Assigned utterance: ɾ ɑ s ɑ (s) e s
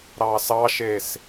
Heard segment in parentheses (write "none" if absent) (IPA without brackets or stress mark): ʃ